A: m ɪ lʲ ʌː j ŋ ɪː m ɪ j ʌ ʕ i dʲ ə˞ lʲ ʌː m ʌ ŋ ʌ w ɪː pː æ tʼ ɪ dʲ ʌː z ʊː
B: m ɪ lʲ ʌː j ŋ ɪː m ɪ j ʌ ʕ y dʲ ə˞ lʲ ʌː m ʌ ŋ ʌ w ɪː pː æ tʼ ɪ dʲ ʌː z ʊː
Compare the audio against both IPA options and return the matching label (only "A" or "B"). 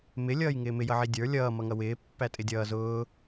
A